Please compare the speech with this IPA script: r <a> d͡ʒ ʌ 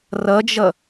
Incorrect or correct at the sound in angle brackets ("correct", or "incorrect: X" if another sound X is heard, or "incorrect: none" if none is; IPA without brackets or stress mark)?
incorrect: ʌ